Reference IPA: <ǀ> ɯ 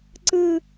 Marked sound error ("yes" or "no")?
no